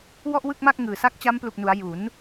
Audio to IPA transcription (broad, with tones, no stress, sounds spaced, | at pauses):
w ɔ˥˩ ʔ w ɯ˥˩ k̚ m a˥˩ k̚ ŋ ɯː˨˩ s a˦˥ k̚ t͡ɕ a˦˥ m p l u˨˩ k̚ n u˩˦ a̯ j u˩˦ n